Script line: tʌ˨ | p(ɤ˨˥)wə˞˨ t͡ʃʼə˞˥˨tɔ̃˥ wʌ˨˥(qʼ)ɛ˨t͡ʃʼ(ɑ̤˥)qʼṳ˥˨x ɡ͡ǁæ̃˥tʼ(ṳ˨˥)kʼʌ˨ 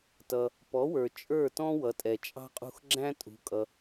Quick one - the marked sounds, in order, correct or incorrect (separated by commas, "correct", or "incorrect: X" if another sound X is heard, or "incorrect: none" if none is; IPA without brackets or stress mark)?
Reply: incorrect: ɔ˨˥, incorrect: tʼ, correct, correct